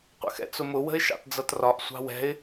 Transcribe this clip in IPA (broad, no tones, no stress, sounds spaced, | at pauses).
qʷ ə̰ x ɛ̰ t͡s ʊ m ʊ w ə̤ ɪ̯ ʃ ɑ̰ t d͡z ʌ t r ɒ ʔ sʷ ɑ̤ w ɛ̤ ɪ̯